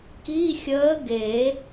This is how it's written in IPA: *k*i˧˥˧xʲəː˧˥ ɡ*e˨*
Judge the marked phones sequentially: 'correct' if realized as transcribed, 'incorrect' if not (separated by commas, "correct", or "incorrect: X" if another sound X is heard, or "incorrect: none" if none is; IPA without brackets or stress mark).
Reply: correct, incorrect: e˨˩˦